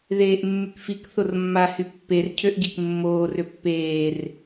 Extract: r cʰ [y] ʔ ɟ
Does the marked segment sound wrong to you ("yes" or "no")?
yes